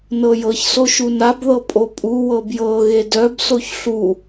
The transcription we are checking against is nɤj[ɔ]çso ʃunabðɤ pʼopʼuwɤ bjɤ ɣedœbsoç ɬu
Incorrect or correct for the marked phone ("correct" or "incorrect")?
incorrect